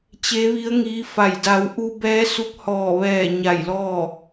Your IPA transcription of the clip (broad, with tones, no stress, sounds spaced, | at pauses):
t͡ɕ e˧˥ ʋ i˧˥ ə̯ ŋ iː˧˥ f a˧˩ j d a˩˧ w ʔ u˧ b ɛː˧˥ s u˧˥ k̚ h ɔː˧˩ ʋ ɛː˧˩ ɲ a˧˩ j l ɔː˥˨